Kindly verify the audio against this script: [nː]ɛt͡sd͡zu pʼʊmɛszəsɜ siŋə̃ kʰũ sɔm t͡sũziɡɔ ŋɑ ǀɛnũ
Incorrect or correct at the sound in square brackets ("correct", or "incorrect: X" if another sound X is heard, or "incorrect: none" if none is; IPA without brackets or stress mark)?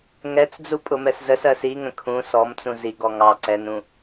incorrect: ŋ